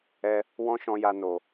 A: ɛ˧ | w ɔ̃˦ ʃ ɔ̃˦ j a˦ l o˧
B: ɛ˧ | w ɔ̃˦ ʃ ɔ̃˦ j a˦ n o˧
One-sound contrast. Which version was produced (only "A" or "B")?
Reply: B